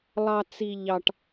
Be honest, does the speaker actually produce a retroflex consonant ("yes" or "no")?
yes